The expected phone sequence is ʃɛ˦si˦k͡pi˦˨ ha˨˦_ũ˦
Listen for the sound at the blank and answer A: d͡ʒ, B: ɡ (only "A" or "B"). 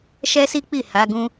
B